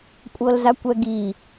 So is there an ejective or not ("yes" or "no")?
yes